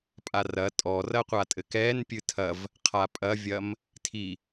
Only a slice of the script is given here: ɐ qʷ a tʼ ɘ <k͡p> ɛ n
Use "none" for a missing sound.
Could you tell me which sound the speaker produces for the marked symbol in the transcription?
k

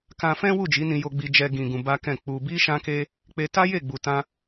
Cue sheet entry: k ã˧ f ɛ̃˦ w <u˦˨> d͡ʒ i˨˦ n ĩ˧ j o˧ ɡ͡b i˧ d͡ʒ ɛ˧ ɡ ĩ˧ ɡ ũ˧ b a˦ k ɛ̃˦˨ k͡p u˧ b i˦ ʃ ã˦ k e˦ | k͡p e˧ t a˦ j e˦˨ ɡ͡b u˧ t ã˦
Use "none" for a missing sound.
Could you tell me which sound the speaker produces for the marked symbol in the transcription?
u˦˨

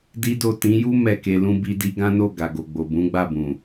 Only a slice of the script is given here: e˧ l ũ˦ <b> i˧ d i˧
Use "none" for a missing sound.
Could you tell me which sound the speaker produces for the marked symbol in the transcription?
b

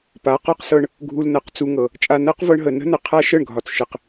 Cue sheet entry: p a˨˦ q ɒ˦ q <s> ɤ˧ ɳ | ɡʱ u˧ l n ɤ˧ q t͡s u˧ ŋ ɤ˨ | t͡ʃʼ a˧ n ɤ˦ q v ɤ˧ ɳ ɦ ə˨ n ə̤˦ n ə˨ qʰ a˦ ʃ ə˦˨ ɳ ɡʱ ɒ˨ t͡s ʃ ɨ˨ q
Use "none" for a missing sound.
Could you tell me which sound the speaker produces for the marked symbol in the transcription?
s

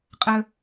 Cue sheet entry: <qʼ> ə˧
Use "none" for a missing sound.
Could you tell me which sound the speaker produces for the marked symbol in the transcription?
qʼ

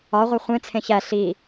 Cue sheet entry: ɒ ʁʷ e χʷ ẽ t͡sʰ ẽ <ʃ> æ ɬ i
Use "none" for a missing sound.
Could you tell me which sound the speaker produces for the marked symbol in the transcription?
ç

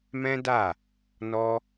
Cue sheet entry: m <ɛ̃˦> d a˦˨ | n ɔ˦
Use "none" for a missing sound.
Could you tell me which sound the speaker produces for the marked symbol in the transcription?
ɛ̃˦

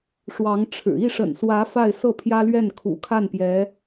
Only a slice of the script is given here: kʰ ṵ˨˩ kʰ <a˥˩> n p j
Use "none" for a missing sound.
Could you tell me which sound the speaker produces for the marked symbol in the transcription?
a˥˩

